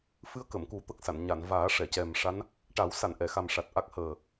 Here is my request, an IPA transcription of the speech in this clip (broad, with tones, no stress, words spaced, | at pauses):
fɨ˧ə̯kə˨˩˨mku˨˩˦ t̪ə˨˩k̚sa˨˩˨n ɲa˨˩˨nvaː˨˩˦ ʂɛ˨˩˨ cɛ˨˩mʂa˧˥n | ʈa˨˩˦wsa˨˩˨n ʔɛ˨˩˨xa˨˩mʂa˨˩t̚ ʔa˦˥k̚həː˨˩